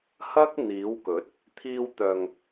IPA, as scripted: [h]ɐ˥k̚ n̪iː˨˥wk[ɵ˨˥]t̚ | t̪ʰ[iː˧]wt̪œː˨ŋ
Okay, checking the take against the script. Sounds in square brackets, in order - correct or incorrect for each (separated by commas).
correct, correct, correct